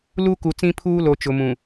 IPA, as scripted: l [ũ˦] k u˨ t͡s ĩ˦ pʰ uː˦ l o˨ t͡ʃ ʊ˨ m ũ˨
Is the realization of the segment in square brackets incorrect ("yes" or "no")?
yes